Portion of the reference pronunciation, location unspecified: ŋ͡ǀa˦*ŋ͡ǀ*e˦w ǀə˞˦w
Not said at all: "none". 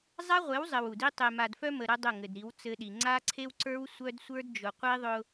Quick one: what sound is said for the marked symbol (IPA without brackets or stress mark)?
ǀʰ